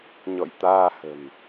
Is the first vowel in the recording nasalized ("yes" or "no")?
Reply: no